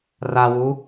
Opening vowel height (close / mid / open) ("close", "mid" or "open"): open